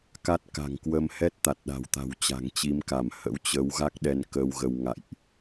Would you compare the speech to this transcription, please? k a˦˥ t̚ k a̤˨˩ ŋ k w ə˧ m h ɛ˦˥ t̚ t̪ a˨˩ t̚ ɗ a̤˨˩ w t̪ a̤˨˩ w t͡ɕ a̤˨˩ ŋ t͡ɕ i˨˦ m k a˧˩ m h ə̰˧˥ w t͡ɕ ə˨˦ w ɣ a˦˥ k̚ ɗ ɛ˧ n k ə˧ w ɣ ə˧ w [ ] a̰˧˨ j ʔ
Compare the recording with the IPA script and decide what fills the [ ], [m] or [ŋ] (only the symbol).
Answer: ŋ